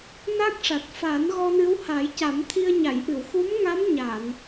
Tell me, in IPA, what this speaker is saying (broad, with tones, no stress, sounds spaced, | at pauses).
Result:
n a˦˥ k̚ ʂ a˨˩ t̚ f aː˨˩˦ n ɣ ɔ˧ n ɨ˧˥ w h a˨˩˦ j c a˨˩˦ m t̪ʰ i˧ ə̯ ɲ a˨˩˨ j ʔ ɨ˨˩˨ w x u˧˥ m ŋ a˧˥ m ɲ a˨˩˨ n